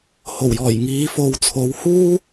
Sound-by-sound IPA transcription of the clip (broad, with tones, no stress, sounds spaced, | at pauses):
h o˨˩ w j ɔː˨˩ j ŋ iː˨˧ f o˨ w t͡sʰ o˨˧ w h uː˥